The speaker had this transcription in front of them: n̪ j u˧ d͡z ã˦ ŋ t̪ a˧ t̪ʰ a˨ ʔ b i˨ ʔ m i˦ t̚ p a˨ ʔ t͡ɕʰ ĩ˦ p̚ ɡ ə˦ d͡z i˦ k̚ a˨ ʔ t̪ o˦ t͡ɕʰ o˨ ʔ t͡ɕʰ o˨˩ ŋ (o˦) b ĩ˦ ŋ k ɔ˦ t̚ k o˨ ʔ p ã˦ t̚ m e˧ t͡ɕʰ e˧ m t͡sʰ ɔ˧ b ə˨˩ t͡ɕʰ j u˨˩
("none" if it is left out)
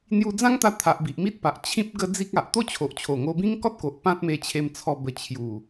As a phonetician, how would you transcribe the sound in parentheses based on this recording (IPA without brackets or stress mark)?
o˧